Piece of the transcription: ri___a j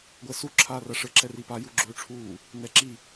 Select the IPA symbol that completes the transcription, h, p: p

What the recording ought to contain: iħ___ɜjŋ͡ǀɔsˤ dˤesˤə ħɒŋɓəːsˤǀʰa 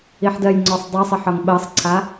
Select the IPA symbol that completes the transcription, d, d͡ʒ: d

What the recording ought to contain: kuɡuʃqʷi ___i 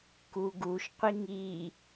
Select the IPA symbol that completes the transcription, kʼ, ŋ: ŋ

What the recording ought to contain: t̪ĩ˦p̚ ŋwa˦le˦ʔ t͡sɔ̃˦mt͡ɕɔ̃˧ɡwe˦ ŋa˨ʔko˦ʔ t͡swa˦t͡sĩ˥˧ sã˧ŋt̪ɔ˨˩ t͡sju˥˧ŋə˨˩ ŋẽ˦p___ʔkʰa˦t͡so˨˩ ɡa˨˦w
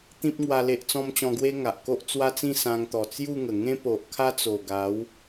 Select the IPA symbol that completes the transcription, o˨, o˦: o˨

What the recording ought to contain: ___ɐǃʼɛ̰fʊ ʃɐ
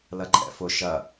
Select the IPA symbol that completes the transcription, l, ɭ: l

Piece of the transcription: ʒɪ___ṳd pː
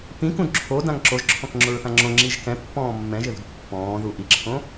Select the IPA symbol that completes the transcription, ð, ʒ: ð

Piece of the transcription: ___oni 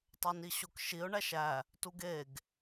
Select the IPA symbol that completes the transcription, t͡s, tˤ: tˤ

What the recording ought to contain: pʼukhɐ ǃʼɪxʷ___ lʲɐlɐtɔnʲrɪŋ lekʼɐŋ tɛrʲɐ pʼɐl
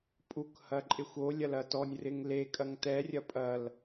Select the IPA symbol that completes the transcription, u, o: o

